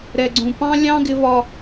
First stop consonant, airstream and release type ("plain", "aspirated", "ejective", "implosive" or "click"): click